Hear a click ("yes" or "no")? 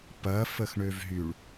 no